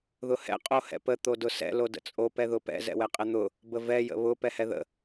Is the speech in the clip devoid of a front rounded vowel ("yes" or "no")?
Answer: yes